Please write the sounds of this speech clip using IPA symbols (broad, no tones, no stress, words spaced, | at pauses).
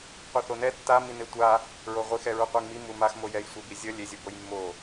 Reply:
qʷiθonɛ tːami netʷa | ɹoʁʷixɛɹu qʷiŋmi mumaxmo jɛjsʷɛb izʲʌ lʲezʲoboj mːo